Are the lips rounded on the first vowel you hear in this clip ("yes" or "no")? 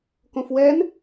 yes